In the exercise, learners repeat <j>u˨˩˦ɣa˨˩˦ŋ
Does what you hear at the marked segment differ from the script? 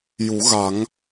no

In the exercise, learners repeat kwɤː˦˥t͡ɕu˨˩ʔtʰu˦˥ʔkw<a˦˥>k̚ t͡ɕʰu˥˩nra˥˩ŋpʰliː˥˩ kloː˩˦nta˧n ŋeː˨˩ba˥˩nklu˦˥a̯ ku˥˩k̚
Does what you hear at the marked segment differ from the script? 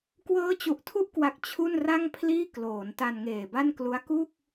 yes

